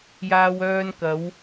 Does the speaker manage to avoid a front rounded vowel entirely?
no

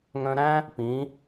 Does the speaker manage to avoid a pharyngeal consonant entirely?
yes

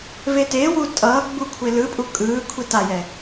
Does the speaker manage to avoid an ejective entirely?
no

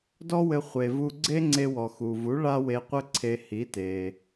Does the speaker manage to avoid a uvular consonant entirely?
no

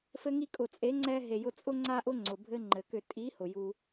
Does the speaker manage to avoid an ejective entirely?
no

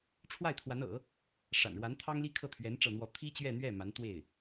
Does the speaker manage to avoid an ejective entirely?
yes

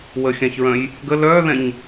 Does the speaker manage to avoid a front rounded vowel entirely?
no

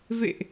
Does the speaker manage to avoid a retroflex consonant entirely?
yes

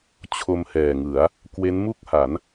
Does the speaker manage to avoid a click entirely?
yes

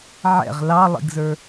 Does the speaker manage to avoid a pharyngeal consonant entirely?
no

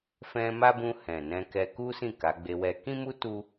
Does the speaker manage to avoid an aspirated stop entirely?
yes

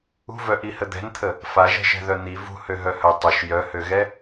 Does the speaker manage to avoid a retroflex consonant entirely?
yes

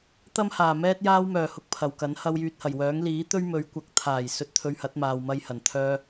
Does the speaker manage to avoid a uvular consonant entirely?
yes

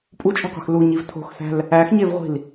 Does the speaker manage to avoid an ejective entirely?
no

